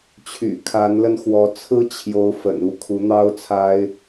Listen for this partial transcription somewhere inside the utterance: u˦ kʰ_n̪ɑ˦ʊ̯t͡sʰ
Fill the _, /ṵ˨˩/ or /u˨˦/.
u˨˦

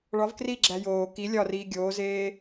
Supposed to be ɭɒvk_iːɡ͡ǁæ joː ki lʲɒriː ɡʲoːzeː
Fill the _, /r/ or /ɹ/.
r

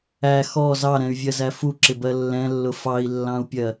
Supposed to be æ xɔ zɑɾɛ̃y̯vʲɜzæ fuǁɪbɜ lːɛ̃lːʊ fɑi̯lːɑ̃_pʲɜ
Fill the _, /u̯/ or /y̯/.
u̯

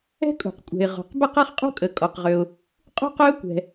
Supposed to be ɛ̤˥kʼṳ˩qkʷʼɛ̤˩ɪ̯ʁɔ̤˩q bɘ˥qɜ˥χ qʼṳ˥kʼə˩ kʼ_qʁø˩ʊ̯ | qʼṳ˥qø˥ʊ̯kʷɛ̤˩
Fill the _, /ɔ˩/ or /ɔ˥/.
ɔ˩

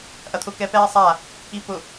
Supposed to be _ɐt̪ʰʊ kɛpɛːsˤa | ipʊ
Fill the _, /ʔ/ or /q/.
ʔ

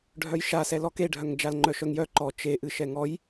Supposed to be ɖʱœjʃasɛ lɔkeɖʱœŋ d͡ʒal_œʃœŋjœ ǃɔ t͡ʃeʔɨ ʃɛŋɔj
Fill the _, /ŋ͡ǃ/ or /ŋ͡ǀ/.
ŋ͡ǃ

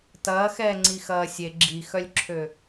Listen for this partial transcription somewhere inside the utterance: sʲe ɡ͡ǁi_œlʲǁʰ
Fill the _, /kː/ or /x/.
x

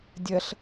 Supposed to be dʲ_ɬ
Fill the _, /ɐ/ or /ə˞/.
ɐ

